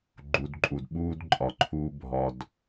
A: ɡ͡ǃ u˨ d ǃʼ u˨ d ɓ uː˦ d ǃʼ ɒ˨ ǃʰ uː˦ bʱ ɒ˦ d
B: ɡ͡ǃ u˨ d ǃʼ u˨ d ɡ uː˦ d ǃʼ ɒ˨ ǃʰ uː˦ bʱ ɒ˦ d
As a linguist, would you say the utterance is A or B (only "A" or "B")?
A